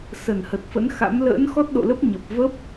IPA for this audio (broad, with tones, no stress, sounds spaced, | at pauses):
s ə˧˩ n h ə˨˩ t̚ f ə̰˧˥ n x a̰˧˥ m l ə̰ː˧˥ n x ɔ˦˥ t̚ ɗ o̰˧˨ l ə˦˥ p̚ ɲ ə˨˩ p̚ v ə˦˥ p̚